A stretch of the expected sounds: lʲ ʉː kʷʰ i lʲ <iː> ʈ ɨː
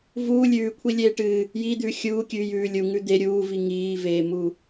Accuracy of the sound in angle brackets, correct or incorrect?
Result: incorrect